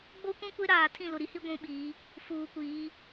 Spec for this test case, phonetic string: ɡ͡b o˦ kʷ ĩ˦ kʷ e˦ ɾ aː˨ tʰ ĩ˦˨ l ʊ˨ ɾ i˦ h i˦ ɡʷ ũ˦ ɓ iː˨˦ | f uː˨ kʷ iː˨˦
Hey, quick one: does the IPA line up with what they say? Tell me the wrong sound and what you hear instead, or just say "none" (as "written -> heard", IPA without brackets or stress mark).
none